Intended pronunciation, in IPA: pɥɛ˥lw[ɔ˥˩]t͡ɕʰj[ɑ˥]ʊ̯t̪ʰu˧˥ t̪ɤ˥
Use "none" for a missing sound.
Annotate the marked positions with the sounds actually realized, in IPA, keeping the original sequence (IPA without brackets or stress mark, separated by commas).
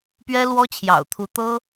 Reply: ɔ˥, ɑ̰˨˩